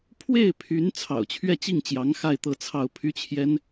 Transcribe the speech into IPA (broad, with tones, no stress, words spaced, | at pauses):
pʰwe˥˩ɪ̯pʰy˧˥n t͡sʰɑ̰˨˩ʊ̯t͡ɕʰɥɛ˥˧t͡ɕi˥˩ŋt͡ɕjɑ˧˥ŋ xa˥˧ɪ̯t̪ɤ˥˧t͡sʰɑ˥˩ʊ̯ pʰy˥t͡ɕʰjɛ˥n